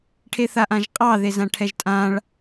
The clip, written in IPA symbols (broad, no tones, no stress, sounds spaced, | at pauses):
ʈʰ e θ a ʔ ã ʒ qʼ ɑ ð e z ã ʈʰ ɛ ʒ tʼ ã ɭ